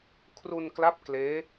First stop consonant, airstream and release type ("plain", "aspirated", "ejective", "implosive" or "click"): aspirated